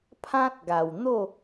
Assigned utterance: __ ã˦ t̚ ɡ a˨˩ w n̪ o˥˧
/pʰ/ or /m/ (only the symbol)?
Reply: pʰ